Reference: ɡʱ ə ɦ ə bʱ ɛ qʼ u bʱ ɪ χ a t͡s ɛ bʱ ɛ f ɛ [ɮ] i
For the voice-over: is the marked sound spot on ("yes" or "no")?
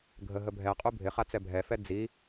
no